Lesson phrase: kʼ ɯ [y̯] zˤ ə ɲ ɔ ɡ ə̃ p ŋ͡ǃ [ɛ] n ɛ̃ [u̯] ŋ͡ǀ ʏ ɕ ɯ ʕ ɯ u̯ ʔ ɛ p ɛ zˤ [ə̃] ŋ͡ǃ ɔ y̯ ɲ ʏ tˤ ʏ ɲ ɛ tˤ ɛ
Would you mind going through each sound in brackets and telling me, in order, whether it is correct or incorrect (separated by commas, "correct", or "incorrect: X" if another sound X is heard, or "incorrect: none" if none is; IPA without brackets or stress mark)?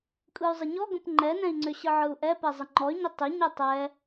correct, correct, incorrect: i̯, incorrect: ə